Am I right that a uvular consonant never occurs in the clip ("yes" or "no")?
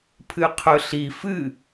no